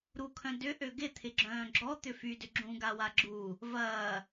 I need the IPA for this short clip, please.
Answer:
ɾ u kʰ œ̃ d ʏ ʔ ø ɡ ɪ t̪ʰ ɪ ɡ͡ǁ œ̃ː ɡ͡ǁ ɔ t̪ ʏ f y d ʏ ɡ͡ǁ ũ ɡ a w a ɡ͡ǁ u | v ɐː

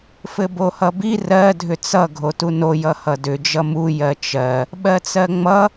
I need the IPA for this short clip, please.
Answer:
f ɘ b o h ʌ b i r ɜ dʱ ʏ t͡s ʌ ɡʱ o t u n o j ʌ h ʌ d ʏ d͡ʒ ʌ m u j ɜ t͡ʃ ɜ | ɓ ɜ t͡s ɜ ŋ͡m ʌ

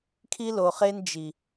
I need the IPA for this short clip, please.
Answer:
kʰ i˦ l o˨ χ e˦ n d͡ʒ i˨

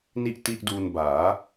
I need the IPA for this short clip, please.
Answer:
n i˥˩ ʔ t i˥˩ ʔ d uː˧ n b aː˩˦

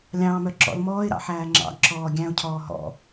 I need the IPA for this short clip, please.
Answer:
lʲ ɑ̃ː m œ ǁ ɔ̰ l m ɔː ɪ̯ ɾ ɑ̰ ħ æː ŋ͡ǁ ɑ̰ ɡ ǁ ɔː ɡʲ æ̃ ʊ̯ cʰ ɔː ɦ ɔ̰

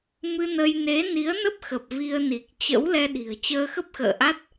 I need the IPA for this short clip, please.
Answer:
m ɨ˧ n ə˧ j n e˨˦ n i˨˦ ə̯ n ə˦˥ p̚ x ə˨˩ p̚ v i˧ ə̯ n i˨˩ k̚ t͡ɕ ə̰˧˥ w l ɛ˧ ɗ i̤˨˩ ə̯ t͡ɕ əː˧ x ə˦˥ p̚ x ə̰ː˧˨ ʔ a˦˥ t̚

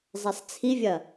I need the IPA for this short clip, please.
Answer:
zˤ ɛ sˤ t͡sʰ i vʲ ɐ

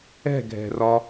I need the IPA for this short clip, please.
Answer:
ɛ̤ ɡʱ ɛ̤ r ɒ

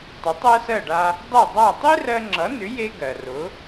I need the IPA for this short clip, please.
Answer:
tˤ ʏ˩˥ tˤ ɜ˥ s ɜ˥˩ ɖ a˧ | dˤ ɛ˥˩ dˤ a˥˩ tˤ e˥ r ɜ˧ ŋ͡ǁ ʌ˩˥ n ʏ˩˥ j e˥ ɡ ɜ˩ r ʊ˩˥

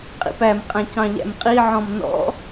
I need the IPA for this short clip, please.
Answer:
qʼ ḭ p æ m qʼ æ̃ c ɑ̃ ʎ æ̰ m qʼ i ʕ ɔ̃ m n ɔ̰

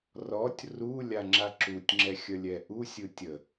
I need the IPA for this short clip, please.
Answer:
r ɔ tʲ r u lʲ a ŋ͡ǁ a ǁ u tʲ ŋ͡ǁ ɛ xʲ ə lʲ ɛ ʔ u sʲ ɯ tʲ ə

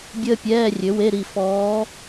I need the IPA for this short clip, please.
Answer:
bʲ əː˥ pʲ ɛː˧˥˧ rʲ ø˩˥ w e˧˥˧ ɾ i˦˨ f ɔː˧˥

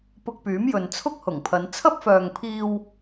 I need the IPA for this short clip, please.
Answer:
p ʊ˧ k̚ p yː˨˥ m j ɵ˨ n t͡sʰ ʊ˥ k̚ h ʊ˨˩ ŋ pʰ ɐ˨˧ n t͡sʰ ɐ˥ p̚ f œː˨ ŋ pʰ iː˧ w

